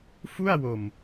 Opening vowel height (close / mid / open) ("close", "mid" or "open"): close